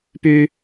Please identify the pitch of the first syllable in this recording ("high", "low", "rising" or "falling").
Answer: low